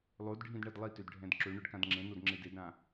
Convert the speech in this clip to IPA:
lˠ o d ɖʱ ĩ d ɳ ɛ d lˠ i t ø d ɖʱ ɛ̃ d ǁ ø ɳ œ ɖ k ã d ŋ͡ǁ ẽ n o d ŋ͡ǁ e d e d ɾ ã

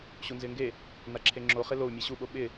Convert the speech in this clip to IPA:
ɕ u n z ɪː ŋ ɡ e | n a ǁʰ e ŋ͡ǁ o χ ɪ l o u̯ mʲ ɛ ɕ u ɓ o ɓ ɪ

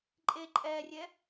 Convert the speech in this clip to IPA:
ǃʼ e ǃʼ ɛ rʲ ɛ

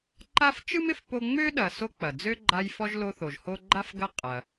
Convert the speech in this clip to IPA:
ǃ a˥ f t͡ʃ ɯ˥ m ɪ˩ f p o˦ ŋ͡m ø˥ ɗ ɐ˨ s o˦ k͡p ɐ˩ d͡z ø˥ ɡ͡ǃ a˦ j f ɔ˥ ʒ l o˦ θ o˩ ʒ h o˦ ɡ͡ǃ a˥ f ɡ ɐ˦ qʼ ɐ˩

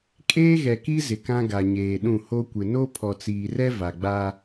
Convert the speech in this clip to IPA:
kʼ eː˦ ɣ ɛ˨ k i˦ z ɪ˨ k ã˦ ɡ a˨ ɲ eː˨ ɗ ũ˦˨ h o˦ kʷ ɪ˨ n o˦ pʰ ɔ˨ t͡s iː˨ r ɛ˦ v a˨ ɡ͡b aː˦

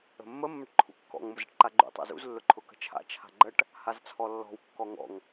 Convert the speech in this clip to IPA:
ə̤ mː ə mː ə ʈ ǃʰ ṵ kː ɔ̰ ŋ m ʊ z ə̰ ʈ ǃ a ɡ͡ǃ ṵ tˤ a̰ z ṵ z lː ʊ ǃʰ ʊ k ə̤ t͡ʃʰ a̰ t͡ʃʰ a̤ ɡ͡ǃ ə ʈ | h a z t͡sʰ ɔ lː ɔ̤ w kː ɔ ŋ ɔ̰ ŋ

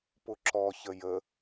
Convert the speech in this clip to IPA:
p ʊ ǁ ɔ ç ə j ə

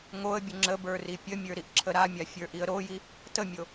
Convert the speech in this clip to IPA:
ŋ o ə̯ bʲ ə ŋ͡ǁ ə b ə˞ r i pʲ ə mʲ ə˞ ɾ i ʔ ǁʰ ə ɾ a mʲ a fʲ ə˞ ʔ i ə̯ ɾ o j i | t ə mʲ o

